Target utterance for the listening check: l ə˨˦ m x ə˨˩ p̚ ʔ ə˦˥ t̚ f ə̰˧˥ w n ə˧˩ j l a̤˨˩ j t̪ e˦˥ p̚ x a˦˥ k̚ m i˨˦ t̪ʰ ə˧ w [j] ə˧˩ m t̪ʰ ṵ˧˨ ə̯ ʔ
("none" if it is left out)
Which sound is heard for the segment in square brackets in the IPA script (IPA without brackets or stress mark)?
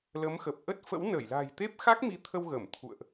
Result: ɣ